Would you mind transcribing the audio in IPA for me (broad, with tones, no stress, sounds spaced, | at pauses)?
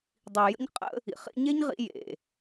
dˤ i˨ j ə̰˦ ɲ qʼ ə̰˦ | ḭ˨ χ ḭ˧ ɲ e˦ ɲ ʁ ḭ˧ j ḛ˨